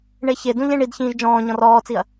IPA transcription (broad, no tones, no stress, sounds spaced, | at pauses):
ɳ e ç e d ũ ʎ ẽ ɳ i d ç ĩː ʒ d͡ʒ ɔ̃ː ɲ ɔ̃ r ɔː t͡s i ɐ̯